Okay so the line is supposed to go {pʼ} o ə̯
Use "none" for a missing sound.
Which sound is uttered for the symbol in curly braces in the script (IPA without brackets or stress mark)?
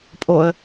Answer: pʼ